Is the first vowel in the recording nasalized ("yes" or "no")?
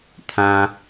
yes